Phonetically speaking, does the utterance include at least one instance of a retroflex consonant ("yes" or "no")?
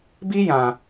no